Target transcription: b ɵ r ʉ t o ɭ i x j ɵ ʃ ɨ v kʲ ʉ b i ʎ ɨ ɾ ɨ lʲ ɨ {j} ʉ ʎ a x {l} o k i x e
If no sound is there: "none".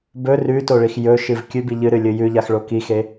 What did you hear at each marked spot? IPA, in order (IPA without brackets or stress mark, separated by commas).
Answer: j, ɭ